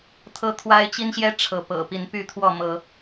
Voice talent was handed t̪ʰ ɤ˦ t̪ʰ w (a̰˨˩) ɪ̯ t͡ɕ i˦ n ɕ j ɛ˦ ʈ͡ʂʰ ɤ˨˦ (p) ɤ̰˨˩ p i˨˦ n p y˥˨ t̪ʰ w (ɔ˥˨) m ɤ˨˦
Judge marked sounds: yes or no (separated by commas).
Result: no, yes, yes